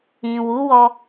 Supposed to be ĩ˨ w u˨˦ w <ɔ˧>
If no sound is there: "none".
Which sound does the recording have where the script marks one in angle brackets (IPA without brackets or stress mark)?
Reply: ɔ˧